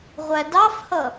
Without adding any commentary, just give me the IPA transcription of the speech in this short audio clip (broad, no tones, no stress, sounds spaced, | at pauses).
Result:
ʁʷ æ d ɑ f h ʌ